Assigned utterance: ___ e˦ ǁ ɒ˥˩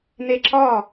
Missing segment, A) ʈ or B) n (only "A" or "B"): B